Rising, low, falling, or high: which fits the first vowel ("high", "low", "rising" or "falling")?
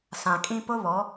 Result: low